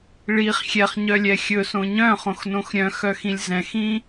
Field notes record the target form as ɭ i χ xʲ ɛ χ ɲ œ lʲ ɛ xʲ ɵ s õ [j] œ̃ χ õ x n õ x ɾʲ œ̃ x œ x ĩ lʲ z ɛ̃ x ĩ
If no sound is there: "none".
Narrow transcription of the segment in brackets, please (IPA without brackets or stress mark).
ɲ